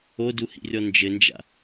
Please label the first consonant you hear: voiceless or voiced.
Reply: voiced